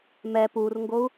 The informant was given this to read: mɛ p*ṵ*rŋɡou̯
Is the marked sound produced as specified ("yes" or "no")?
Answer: no